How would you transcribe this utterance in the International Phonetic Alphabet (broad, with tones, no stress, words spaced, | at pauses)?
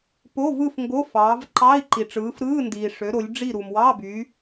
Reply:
po˧˥˧vɯ˥˨f ŋɡo˧˥˧fɑː˨˦vǃɑ˧˥˧i̯ ǃi˨ʈ͡ʂɯː˨˦fɾɯː˧˥˧ndiː˨ ʂø˨˦ ɾo˨˦lʲɖ͡ʐi˥˨ɾu˨m wɑ˧˥˧ by˨˦